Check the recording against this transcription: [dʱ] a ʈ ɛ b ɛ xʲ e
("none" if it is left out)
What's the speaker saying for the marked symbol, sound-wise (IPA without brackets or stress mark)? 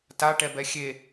t